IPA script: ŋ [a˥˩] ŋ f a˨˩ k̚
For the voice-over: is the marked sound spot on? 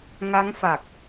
no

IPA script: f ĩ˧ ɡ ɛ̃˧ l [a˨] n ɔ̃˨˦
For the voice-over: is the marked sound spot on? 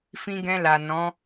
yes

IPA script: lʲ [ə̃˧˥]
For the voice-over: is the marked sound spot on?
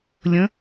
yes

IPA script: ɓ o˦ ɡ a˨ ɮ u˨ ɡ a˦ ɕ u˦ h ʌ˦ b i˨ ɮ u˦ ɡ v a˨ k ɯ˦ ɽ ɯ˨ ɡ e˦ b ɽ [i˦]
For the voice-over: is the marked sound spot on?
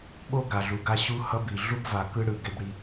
yes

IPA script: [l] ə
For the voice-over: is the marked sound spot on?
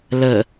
yes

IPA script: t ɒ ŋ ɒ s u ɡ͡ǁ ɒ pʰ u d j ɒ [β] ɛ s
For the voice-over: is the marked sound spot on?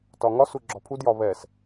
yes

